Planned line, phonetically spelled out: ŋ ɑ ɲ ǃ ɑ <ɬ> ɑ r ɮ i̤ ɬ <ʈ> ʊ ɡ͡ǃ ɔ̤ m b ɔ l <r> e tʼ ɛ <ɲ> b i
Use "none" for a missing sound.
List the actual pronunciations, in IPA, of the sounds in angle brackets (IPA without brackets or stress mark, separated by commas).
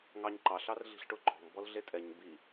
ɬ, ʈ, ɮ, ɲ